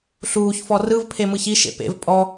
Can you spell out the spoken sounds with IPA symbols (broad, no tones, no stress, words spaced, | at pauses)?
ɬuːçfɔ rɯvpʰemɯç iʃḛ pḛv pʼɔ